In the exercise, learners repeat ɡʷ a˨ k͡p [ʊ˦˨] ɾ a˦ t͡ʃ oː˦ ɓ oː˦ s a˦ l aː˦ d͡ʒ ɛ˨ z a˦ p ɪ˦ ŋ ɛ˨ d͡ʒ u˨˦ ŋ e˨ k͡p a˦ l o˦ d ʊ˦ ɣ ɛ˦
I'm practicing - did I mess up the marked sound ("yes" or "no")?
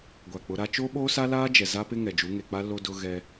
yes